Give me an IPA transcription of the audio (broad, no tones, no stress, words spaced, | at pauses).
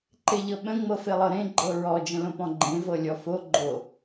ǃeʎɤɓə̃ ŋ͡mɤfelˠɤɾẽ ɡ͡ǃɤɹɔ d͡ʒə̃lõpɔ̃ɡ͡ǃẽ vɤlʲɔfo ɡ͡ǃo